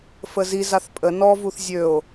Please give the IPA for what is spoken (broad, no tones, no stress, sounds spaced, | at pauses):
f ə z i z a θ pʼ ə n ɔ v u θ zʲ ø o̯